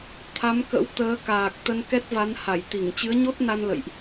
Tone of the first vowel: rising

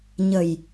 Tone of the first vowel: low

